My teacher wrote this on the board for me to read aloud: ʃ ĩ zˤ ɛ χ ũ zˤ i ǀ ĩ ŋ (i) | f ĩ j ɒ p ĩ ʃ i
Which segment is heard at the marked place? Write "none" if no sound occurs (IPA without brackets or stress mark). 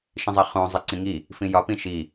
i